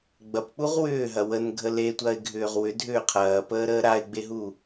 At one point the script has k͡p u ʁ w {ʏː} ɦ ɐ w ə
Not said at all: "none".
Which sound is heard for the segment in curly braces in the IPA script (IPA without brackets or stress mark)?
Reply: ʏː